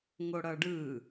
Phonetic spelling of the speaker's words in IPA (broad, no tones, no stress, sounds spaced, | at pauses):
ŋ o ɽ ʌː ɖ ɯ